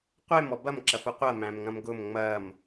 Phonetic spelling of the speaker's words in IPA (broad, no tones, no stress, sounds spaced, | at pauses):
qʷ e m ɔ b ɐ m ǁ ɐ f ʊ qʷ ɐ m æ̃ m ŋ ɐ̃ m ɡ ʊ m ŋ͡m ɐ m